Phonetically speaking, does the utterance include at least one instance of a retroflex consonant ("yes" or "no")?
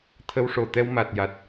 yes